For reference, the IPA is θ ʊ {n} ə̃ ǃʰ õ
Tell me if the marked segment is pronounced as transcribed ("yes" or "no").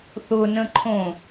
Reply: yes